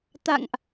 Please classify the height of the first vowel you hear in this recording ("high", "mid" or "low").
low